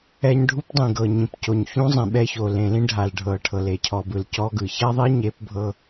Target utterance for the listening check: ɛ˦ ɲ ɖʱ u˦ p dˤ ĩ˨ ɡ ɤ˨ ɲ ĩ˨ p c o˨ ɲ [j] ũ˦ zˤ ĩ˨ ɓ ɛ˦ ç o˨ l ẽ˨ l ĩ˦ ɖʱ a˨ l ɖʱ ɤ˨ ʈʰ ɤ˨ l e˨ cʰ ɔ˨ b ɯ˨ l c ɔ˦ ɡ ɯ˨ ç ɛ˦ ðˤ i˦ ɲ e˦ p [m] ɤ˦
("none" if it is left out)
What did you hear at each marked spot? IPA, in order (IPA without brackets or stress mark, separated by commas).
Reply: ç, bʱ